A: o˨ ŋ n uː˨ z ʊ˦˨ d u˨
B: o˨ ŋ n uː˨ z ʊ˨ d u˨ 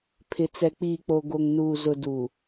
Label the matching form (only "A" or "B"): B